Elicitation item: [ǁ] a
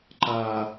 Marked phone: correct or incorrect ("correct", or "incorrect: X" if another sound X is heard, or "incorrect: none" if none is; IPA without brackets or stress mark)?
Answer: incorrect: ǃ